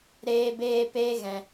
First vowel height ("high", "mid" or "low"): mid